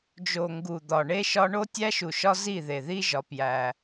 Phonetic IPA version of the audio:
d͡ʒo˨ŋɡu˨ d̪ɒ˨ɳe˦ʃɒ˦ ɳo˦tʲæ˦ʃu˨ʃɒ˦ zi˦˨ðe˨ði˦ʒɒ˨˦ pjæ˦

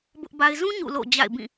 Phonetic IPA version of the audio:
bʊ˦ʔba˦ɪ̯ zũ˦ ɲṵ˦˨lo̰˦˨ d͡ʑa̰˦˨ɪ̯bĩ˦˨

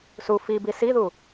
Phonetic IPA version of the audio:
su fibi siðu

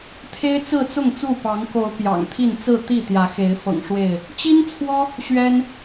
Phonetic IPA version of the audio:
t̪ʰe˦ɪ̯t͡sɹ̩˥˨ t͡sʊ˥˨ŋ t͡su˥˨pɑ˨˦ŋ ko˨˦ʊ̯ pjɑ̰˨˩ŋt̪ʰi˥˨n t͡sɹ̩˥˨ t̪i˥˨ t̪jä˨˦xe˨˦ɪ̯ fɤ̰˨˩ŋʂwe˥˨ɪ̯ | t͡ɕi˦nt͡sʰwɔ˦ | ɕɥɛ˦n

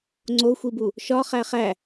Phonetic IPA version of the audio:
ŋ͡ǀoxʷibu | ʃɒχæ χæ

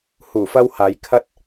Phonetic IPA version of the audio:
huː˨˩fɐ˧w haː˨˧jkʰɐ˥t̚

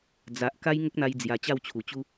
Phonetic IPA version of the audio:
d͡za˨ʔ ka˦jŋə˦k̚n̪a˧jd͡zja˨˩ t͡ɕa˥˧wt͡ɕʰu˨˩t͡ɕu˦

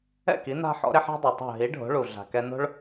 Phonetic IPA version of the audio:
ɛ̰˥˩ki˩˥ na̤˧ ħɔ̰˥ɾe˥ħ a̤˥dˤɛ˩tˤa̤˥˩ ɦi˩˥ ɖʱo̤˩˥ɭu˩ ɮa̤˩ kɛ˧ no̤˥ɭ

